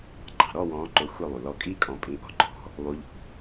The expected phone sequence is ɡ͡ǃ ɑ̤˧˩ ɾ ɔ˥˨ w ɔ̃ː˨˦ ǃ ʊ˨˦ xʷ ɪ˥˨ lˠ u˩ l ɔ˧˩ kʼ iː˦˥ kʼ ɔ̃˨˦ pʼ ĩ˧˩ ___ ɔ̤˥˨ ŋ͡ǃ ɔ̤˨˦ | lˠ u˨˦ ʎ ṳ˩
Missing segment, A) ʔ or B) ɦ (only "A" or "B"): A